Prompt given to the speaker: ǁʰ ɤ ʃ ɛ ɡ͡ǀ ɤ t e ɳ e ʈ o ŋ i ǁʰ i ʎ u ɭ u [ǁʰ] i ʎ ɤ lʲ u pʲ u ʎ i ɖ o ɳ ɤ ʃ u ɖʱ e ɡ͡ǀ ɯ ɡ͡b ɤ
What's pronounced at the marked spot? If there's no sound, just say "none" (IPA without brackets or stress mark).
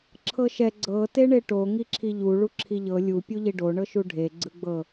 ǁʰ